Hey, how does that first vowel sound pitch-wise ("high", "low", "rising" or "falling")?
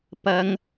high